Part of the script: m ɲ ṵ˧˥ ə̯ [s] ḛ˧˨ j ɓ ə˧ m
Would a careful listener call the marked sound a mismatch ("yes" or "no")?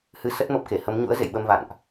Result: yes